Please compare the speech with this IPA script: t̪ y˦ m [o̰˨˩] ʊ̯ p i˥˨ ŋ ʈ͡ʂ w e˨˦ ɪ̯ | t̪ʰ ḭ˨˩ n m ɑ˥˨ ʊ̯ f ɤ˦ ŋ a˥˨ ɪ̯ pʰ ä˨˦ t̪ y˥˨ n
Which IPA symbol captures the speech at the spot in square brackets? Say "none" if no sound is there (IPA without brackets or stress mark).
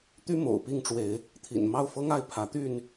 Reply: o̰˨˩